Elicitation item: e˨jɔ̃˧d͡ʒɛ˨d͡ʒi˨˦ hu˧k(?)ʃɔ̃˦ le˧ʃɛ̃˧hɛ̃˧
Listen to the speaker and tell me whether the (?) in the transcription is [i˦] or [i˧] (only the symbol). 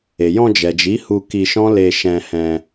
i˧